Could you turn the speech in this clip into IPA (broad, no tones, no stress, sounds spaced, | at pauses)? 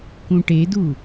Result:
k ũ ʈ e d u